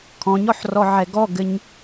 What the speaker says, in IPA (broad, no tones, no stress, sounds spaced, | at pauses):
kʰ ɔ̃ ɲ ɔ ħ r ɔ ʕ ɛ ɡ ɔ ɡ ɘ ɲ